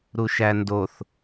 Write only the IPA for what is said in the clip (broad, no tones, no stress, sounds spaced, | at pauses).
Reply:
ɾ u ʃ æ n d o θ